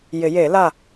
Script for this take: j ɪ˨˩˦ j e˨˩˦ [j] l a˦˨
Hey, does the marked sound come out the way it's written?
no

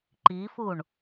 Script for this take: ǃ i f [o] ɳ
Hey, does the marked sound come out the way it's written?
no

